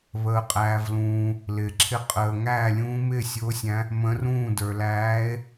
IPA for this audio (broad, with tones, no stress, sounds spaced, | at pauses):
β əː˨ qʼ æː˨ v l ũː˨ | l ɪː˨ ǁʰ ɪ˥˩ qʼ əː˨ ŋ æː˥˩ lʲ ũː˧˥ m ɪː˥˩ sʲ ʊː˧˥ sʲ æ̃˧˥ | m ə̃˧˥ r ũː˥˩ d ə˞˨ l æː˧˥ e̯